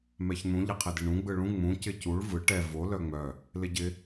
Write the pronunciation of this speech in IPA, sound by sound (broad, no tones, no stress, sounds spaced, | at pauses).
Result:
m ɛ ç n̪ ũ ʎ ɪ qʰ ɪ d ɪ ɳ ũ ɡ͡b ɯ ɭ ũ ŋ͡m ũ c ɪ c u ɭ v ɯ ʈ ɛ v o l œ ŋ͡m œ | l ɪ ɟ ɪ